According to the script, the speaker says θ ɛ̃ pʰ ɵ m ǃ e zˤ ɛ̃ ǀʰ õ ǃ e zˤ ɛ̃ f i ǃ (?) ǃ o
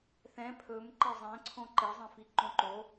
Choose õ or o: õ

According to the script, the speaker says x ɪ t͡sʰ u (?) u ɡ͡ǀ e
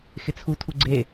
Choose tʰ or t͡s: tʰ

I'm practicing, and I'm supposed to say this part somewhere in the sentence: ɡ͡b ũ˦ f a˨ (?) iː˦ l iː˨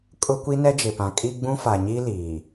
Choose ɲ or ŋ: ɲ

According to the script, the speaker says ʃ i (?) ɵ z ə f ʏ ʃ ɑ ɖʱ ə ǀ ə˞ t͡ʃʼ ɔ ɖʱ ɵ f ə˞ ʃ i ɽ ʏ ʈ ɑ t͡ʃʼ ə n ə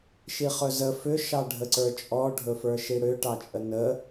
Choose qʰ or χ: χ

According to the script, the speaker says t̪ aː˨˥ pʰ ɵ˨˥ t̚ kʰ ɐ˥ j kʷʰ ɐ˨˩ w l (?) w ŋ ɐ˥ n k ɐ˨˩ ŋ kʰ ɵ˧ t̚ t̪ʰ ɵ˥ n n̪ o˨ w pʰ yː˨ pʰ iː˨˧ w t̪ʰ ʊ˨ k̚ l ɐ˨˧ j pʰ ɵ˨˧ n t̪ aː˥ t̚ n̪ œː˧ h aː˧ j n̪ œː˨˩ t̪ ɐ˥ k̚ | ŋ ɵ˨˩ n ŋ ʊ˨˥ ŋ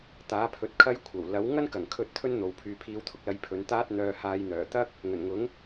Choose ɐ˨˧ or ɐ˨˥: ɐ˨˥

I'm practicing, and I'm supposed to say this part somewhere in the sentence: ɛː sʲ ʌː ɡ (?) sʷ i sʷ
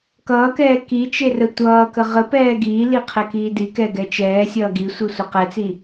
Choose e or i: i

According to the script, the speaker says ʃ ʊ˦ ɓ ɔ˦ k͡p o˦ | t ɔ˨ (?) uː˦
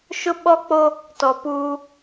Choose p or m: p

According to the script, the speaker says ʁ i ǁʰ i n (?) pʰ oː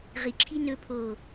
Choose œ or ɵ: ɵ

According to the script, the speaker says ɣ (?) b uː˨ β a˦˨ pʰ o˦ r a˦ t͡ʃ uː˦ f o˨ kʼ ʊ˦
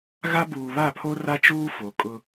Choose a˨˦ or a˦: a˦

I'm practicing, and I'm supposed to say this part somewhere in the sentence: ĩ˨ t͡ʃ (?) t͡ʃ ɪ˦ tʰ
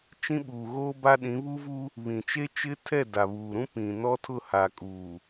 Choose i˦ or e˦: e˦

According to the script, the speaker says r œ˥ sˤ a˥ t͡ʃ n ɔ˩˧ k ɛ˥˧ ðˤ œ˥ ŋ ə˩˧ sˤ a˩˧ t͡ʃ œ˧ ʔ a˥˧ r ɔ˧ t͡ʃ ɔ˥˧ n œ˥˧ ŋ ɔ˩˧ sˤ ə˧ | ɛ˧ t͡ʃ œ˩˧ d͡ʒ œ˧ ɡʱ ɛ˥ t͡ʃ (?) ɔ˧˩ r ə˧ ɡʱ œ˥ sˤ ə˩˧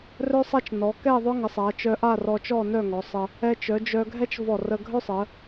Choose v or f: v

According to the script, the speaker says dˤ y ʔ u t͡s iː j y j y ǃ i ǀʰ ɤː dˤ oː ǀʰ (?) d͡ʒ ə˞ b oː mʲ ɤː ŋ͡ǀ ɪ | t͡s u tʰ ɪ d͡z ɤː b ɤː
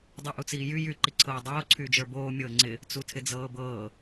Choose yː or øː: yː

